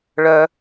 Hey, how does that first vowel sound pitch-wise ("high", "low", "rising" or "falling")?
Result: high